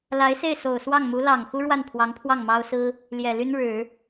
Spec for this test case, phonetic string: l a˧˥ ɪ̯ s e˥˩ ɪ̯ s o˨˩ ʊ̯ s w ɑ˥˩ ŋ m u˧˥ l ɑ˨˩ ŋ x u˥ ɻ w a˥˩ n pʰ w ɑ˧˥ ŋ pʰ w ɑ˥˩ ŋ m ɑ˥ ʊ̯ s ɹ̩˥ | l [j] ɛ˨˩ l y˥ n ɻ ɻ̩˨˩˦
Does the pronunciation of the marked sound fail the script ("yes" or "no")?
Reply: no